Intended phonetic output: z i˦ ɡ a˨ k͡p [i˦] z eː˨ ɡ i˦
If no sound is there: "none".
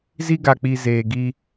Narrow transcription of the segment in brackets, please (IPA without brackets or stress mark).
i˨